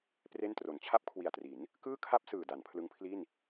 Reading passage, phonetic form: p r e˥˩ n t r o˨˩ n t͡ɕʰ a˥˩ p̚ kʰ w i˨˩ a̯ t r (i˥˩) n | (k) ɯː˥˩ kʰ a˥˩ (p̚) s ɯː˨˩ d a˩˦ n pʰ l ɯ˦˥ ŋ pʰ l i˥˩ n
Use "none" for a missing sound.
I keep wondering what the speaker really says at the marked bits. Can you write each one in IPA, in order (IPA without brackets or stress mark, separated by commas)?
i˩˦, k, p̚